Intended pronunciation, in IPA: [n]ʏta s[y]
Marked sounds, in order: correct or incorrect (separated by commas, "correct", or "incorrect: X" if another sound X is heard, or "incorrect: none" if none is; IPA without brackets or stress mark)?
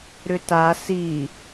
incorrect: ɾ, incorrect: i